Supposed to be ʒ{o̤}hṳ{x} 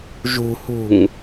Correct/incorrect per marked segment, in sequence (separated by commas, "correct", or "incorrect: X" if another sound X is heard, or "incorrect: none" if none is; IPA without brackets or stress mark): incorrect: ṳ, incorrect: ŋ